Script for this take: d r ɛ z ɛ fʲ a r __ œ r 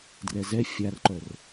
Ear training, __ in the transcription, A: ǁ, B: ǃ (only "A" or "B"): B